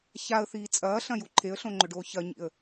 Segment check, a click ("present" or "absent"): present